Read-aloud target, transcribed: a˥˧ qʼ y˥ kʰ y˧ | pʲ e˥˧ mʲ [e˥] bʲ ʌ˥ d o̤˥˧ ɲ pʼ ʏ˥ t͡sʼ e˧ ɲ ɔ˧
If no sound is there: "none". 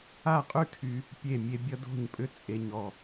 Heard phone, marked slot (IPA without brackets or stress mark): e˥